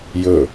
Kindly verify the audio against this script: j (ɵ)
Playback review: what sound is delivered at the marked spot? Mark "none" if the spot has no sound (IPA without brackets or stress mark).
ɵ